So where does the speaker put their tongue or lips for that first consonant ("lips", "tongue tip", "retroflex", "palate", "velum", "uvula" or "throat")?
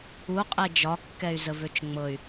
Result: uvula